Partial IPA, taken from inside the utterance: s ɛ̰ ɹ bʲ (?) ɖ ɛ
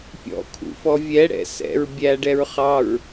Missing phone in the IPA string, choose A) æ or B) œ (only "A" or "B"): A